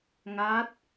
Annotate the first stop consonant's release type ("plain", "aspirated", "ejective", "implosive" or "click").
plain